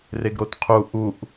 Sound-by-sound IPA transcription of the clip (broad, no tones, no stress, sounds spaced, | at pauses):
r e ɡ ɾ o t qʰ u ʔ u ʔ